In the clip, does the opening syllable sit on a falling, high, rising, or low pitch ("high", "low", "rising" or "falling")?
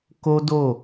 high